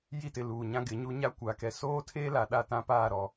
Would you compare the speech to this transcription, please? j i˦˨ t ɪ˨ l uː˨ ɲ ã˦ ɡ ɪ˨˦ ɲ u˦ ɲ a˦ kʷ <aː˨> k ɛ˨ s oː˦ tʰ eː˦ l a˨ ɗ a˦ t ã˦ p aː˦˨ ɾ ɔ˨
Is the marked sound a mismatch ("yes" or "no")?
no